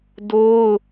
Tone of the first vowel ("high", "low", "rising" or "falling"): high